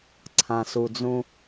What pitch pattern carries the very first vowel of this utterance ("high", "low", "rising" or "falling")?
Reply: low